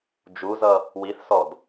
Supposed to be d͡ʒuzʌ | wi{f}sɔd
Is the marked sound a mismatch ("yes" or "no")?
yes